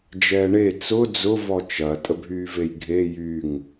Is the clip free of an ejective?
no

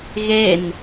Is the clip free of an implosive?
yes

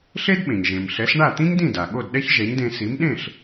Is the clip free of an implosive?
no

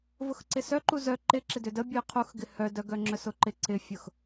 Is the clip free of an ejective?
yes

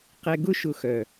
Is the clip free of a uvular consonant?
no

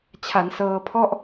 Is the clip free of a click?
yes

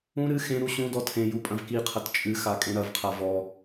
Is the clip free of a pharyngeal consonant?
yes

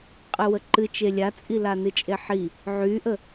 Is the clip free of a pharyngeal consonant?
no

